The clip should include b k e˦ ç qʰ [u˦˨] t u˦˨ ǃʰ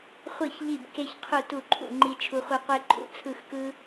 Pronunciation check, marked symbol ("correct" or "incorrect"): correct